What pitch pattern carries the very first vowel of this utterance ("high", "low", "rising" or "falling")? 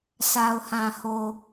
low